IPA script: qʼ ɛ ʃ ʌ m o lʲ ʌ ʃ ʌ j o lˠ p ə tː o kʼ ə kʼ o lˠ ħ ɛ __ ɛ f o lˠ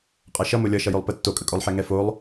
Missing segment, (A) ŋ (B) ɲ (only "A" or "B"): A